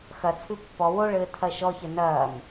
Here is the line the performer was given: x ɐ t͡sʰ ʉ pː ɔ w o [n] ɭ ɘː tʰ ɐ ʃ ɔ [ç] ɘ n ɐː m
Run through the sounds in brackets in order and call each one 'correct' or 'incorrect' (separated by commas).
incorrect, correct